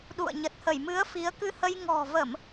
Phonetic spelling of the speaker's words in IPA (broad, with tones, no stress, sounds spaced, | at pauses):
ɗ ṵ˧˨ ə̯ ɲ ə˨˩ t̚ h ə˧˩ j m ɨ˨˦ ə̯ f i˨˦ ə̯ k ɨ˧ h ə˧ j ŋ ɔ̤˨˩ v ə˧˩˨ m